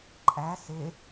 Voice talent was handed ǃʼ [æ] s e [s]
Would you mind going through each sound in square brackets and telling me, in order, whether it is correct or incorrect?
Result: correct, incorrect

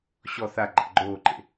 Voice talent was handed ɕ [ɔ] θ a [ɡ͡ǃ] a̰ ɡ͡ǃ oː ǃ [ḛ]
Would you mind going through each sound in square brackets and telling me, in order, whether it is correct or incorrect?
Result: correct, correct, correct

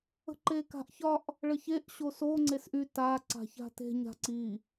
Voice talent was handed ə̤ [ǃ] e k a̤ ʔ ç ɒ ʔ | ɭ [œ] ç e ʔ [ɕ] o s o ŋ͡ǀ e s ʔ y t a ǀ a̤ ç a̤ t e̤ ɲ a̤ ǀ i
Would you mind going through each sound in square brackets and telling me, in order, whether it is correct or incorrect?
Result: correct, incorrect, correct

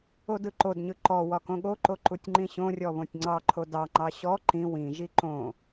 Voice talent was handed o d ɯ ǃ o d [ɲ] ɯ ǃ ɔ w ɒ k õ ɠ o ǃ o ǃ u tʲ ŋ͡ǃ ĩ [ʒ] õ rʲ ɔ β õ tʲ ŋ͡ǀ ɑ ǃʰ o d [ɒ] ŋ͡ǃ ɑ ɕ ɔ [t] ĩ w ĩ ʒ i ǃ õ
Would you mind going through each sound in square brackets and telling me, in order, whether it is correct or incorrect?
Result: correct, incorrect, incorrect, incorrect

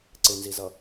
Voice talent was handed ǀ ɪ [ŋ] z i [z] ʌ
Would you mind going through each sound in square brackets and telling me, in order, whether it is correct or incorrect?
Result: incorrect, correct

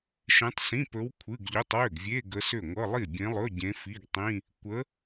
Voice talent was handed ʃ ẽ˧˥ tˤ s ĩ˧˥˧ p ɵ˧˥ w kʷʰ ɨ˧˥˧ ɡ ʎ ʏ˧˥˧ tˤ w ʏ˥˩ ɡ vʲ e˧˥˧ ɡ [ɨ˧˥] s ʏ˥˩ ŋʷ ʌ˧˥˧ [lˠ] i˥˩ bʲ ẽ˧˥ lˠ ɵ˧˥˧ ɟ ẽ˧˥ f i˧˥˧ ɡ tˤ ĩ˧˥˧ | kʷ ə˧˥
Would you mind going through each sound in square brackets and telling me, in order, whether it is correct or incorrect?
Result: incorrect, correct

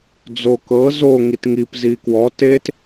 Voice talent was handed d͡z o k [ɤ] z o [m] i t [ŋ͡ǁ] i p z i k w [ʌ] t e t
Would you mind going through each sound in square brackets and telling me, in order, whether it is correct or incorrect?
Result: correct, incorrect, incorrect, incorrect

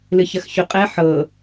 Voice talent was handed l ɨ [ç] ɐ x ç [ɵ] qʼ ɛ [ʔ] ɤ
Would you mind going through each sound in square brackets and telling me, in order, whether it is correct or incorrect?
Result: correct, correct, incorrect

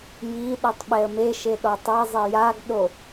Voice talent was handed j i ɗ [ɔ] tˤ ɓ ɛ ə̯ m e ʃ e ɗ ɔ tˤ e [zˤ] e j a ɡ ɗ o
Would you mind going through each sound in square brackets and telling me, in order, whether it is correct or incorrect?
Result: incorrect, correct

